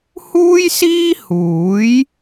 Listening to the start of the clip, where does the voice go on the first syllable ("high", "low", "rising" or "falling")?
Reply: high